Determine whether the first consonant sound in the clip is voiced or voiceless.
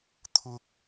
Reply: voiceless